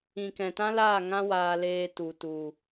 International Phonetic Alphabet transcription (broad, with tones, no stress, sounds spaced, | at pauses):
ĩ˨ k ɛ̃˨ t ã˦ l aː˦˨ ŋ ã˦ w aː˧ l eː˧ t u˨ t u˨